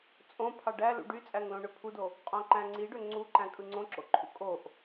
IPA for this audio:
t͡sʼ õ pʰ ɑ ɖ æ l ṵ ɖ y t͡sʼ æ ŋ l õ ɳ ø pʰ u d o | qʼ õ ǃ æ̃ ŋ͡ǀ i ɖ ø ŋ͡ǀ u ǃ æ̃ kʼ ɯ ŋ͡ǀ õ ǁ o̰ ǃʰ ṵ kʼ o ʔ

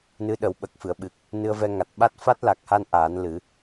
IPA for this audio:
n ɨ˧˥ ɗ ə˨˩˦ w ɓ ə˨˩ k̚ f ɨ˨˩˨ ə̯ ɓ ɨ˨˩ k̚ | n ɨ˧ ə̯ v ɛ˧ ŋ a˨˩ t̚ ɓ a˦˥ t̚ f a˦˥ t̚ l a˨˩ k̚ h a˧ n ʔ aː˨˩˦ n l ɨ˨˩˦

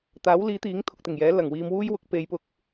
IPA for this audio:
t̪ aː˨˥ w l iː˨˥ t̪ iː˨˥ ŋ t̪ʰ ʊ˨ k̚ t̪ ɪ˨˩ ŋ j ɛː˨˥ l ɐ˨˩ ŋ w iː˧ m w uː˥ j w ʊ˨˥ k̚ p e˨˧ j p ʊ˨ k̚

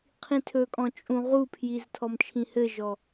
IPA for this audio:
qʰ ĩ tʰ ɵ kʼ ɔ̃ t͡ʃʼ ũ ʁ u pʰ j i z tʰ ɔ m t͡ʃʰ ĩ h ɘ ʒ ɔ

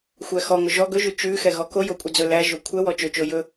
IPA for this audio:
xʷ æ x ɔ ŋ ɵ ʒ ɔ ɡ ɵ ʒ ʉ t͡ʃ ʉ x ɛ ɣ ɔ k o j o kʷʼ ɛ d͡z ɵ l æ ʒ o kʷʰ ɛ w ɔ t͡ʃ ɵ t͡ʃ o j ɵ

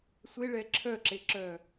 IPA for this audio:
sʷ e ɭ ɛ ǁʰ œ ǁ e ǁ œ

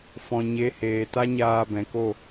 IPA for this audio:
f ɔ̃˨ ɲ e˨˦ h eː˨ t a˦ ɲ aː˧ b ɛ̃˨ k o˦˨

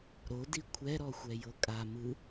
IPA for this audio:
ɾ o d i kʷʰ ɛ ɾ ɔ xʷ ɛ j ɤ kʼ a m ɯ

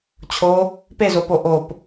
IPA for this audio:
t͡ɕʰ o | p e z o p o ʔ o p

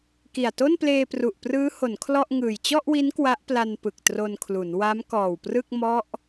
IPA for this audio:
k i˨˩ a̯ t o˥˩ n p l eː˧ p r u˨˩ ʔ p r ɯː˦˥ h o˩˦ n kʰ l ɔ˥˩ ʔ ŋ ɯː˨˩ j t͡ɕ ɔ˥˩ ʔ w i˦˥ n k w a˦˥ ʔ p l a˧ n p ɯ˨˩ k̚ t r o˧ n kʰ l u˩˦ n w a˦˥ m k ɔː˨˩ w p r ɯ˥˩ k̚ m ɔ˦˥ ʔ

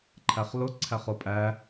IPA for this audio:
ǃʰ æ χ l ʊ ǀʰ æ χ ʊ pʼ æ

